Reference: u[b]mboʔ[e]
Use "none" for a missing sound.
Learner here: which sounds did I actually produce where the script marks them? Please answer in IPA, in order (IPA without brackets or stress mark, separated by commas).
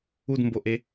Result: d, e